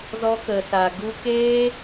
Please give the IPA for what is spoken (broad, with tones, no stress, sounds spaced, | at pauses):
z ɔ˦ k ə˨ s a˨ ɡ u˦ k eː˦